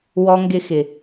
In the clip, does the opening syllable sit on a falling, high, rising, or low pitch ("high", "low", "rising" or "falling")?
high